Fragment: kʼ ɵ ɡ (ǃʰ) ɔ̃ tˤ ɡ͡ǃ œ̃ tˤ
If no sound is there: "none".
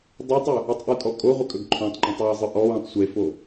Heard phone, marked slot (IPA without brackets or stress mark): ǃʰ